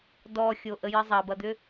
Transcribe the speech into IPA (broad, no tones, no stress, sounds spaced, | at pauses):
d ɔ xʲ o ʔ ə j ə zˤ ɐ b ɐ d̪ ʏ